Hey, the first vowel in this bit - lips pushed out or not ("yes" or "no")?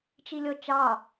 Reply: no